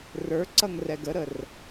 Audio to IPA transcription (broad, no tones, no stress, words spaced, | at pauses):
rə˞ǀʌŋ rɛɡəɾər